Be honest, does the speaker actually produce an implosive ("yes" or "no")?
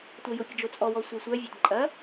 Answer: no